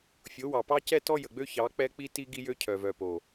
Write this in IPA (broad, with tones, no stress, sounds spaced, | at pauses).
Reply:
fʲ o˨˦ w ɑ˨ p ɑ˦ c ɛ˦ t ɔ˦ j ə˨ ɡ͡b ø˦ ç ɑ˨˦ k͡p ɛ˦ k͡p i˦ t i˦ ɡ i˦ j ø˦ cʰ œ˨ v œ˨ p o˨